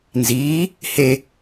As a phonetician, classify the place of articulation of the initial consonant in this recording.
alveolar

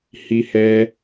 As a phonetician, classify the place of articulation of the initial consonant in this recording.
glottal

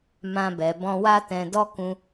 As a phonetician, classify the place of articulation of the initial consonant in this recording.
labial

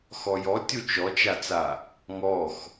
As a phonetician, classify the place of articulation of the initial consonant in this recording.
velar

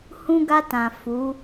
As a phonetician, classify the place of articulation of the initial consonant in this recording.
glottal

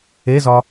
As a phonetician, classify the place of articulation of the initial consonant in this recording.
alveolar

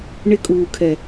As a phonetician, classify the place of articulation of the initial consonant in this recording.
retroflex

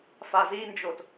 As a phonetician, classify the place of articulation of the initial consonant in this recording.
labial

